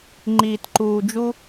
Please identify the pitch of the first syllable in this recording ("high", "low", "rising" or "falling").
low